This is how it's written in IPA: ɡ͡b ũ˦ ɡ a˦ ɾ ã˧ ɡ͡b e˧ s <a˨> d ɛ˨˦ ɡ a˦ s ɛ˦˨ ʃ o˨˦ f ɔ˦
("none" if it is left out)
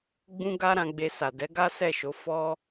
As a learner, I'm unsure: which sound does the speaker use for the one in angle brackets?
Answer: a˨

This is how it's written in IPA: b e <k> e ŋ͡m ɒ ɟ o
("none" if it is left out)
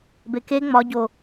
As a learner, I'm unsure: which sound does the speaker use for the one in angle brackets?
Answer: k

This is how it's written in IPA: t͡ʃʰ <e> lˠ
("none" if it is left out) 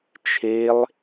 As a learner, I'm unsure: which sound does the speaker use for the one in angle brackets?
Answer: e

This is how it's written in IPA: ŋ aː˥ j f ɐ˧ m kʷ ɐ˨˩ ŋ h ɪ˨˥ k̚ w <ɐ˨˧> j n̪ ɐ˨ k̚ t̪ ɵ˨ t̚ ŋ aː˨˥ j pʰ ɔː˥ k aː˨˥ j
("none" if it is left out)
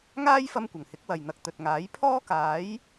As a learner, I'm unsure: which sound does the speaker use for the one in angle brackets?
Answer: ɐ˨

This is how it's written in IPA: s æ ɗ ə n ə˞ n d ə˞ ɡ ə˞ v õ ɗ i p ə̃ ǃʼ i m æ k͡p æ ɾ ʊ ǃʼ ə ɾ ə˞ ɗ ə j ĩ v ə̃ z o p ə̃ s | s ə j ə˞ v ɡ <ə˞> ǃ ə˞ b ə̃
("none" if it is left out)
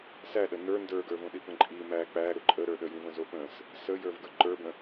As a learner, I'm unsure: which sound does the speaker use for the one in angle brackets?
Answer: ə˞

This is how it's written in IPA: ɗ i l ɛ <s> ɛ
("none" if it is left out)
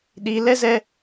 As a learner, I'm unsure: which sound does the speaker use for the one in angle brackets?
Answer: z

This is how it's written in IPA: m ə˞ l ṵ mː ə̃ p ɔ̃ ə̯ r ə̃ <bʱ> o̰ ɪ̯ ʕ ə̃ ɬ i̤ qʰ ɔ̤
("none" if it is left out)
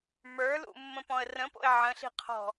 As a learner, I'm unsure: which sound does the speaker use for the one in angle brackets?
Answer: p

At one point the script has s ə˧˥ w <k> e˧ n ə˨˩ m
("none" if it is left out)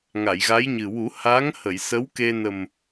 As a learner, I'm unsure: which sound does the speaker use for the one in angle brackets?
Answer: k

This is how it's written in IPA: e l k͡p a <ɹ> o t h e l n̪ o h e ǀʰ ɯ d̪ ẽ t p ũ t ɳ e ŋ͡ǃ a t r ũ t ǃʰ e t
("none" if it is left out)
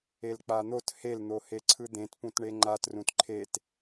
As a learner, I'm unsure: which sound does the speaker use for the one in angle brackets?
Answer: n̪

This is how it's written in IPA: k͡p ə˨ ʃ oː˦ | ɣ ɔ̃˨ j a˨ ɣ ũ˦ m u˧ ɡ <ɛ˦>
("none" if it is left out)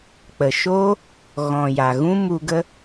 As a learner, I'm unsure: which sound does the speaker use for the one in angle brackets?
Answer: ə˦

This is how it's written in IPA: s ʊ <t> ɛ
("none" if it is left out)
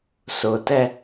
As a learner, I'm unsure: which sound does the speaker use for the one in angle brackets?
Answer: t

